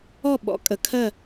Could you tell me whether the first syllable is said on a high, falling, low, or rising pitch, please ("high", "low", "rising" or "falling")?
falling